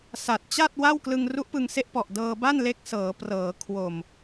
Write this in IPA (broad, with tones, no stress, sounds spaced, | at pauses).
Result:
s a˨˩ t̚ t͡ɕ a˥˩ t̚ w a˥˩ w k l ɯ˧ ŋ r u˦˥ ʔ p ɯ˧ ŋ s e˦˥ ʔ p ɔ˨˩ ʔ d ɤː˧ b a˥˩ n l e˦˥ k̚ s ɤː˩˦ p r ɤː˩˦ kʰ w o˨˩ m